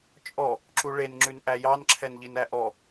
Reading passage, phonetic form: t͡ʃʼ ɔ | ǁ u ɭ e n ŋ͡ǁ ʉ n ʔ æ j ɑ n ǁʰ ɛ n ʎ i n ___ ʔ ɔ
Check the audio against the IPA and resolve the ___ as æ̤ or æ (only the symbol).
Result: æ